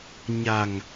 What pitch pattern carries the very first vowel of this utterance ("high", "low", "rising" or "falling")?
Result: low